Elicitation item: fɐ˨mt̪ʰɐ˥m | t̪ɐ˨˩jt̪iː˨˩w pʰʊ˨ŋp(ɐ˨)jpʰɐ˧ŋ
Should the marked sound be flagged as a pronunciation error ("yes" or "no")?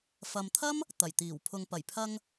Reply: yes